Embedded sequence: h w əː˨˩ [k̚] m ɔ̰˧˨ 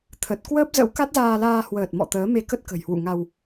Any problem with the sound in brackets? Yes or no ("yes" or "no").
yes